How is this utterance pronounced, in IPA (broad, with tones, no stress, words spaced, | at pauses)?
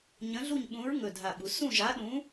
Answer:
ɲə̃˧˥ɮu˥˧ɲɓũ˧˥ɹ ŋɵ˥˧dʱa˥˧ɓu˧˥ sũ˥˧ʒa˧˥ɗũ˧˥